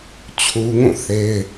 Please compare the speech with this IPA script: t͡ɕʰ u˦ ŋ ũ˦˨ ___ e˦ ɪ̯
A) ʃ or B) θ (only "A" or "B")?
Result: B